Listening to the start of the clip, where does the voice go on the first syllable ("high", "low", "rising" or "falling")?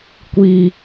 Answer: high